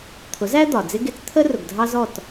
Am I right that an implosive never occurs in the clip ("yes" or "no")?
yes